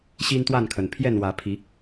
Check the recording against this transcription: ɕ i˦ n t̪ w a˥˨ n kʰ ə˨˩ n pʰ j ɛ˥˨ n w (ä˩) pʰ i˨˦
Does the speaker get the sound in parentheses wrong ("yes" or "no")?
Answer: yes